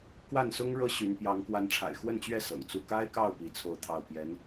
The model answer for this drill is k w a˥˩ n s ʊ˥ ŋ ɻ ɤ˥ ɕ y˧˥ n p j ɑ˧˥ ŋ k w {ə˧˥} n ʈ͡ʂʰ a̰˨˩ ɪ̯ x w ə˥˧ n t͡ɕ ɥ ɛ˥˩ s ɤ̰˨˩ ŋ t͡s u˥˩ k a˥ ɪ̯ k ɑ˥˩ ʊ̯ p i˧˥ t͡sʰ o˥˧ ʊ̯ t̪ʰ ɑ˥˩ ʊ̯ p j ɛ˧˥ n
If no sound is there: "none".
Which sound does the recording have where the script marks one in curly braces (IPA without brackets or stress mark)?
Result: a˧˥